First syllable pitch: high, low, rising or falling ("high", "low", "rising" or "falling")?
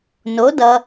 rising